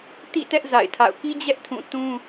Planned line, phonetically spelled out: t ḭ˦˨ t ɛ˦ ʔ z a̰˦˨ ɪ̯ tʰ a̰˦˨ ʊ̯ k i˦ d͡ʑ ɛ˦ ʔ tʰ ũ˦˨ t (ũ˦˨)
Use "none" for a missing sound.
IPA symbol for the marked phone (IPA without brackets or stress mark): ũ˦